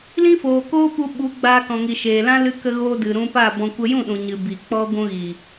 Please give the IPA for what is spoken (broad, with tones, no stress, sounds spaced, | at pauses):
l ĩ˦ f oː˨ k oː˦ p u˧ ɓ u˨˦ ɡ͡b aː˧ k ɔ̃˨ ŋ i˨ ʃ eː˨ l ã˦ l ɨ˧ k ə˧ ɣ oː˧ d ɨ˨ ɾ ũ˧ p a˦˨ b ɔ̃˧ kʷ ə˧ j ũ˦˨ ɗ ũ˨ ɲ ɨ˨ b i˨ k͡p ɔ˦ ɡʷ ũ˧ ɣ i˨